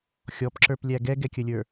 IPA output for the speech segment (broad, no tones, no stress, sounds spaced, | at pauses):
xʲ ɔ p ǁ ə˞ p lʲ æ ɡ ɛ ɡ ɛ kʲ ə lʲ ə˞